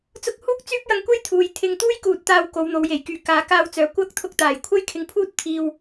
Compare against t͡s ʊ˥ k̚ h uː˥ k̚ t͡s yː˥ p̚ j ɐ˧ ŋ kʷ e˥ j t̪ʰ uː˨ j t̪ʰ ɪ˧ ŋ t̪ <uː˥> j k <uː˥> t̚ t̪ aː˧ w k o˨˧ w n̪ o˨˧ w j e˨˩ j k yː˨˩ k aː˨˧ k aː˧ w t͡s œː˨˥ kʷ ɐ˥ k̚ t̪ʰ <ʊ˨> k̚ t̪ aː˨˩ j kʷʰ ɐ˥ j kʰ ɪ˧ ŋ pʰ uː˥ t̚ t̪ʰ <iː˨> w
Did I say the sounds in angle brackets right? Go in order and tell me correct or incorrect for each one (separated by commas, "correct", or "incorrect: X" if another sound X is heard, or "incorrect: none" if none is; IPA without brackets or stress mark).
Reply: correct, incorrect: uː˨, incorrect: ʊ˧, incorrect: iː˧